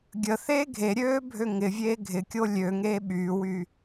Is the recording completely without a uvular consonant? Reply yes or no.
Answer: yes